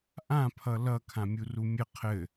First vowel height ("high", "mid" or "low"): low